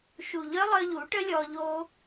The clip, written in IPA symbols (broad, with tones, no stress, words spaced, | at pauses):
ʃu˨ʎœ˦lˠœ˧ ʎu˨˦ʈə˦lʲɔ˧ ʎo˧